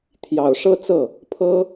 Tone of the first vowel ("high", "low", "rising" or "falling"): low